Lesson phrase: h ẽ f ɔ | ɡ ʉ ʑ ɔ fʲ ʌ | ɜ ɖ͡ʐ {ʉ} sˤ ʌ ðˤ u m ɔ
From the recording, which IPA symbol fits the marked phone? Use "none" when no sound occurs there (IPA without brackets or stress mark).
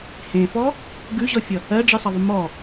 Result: ɨ